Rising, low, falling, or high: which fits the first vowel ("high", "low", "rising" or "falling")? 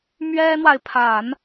high